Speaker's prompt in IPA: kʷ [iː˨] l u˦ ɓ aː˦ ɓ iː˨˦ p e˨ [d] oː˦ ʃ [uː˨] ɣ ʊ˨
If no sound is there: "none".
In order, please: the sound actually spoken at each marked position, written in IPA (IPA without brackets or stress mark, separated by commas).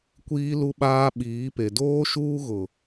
iː˦, d, uː˦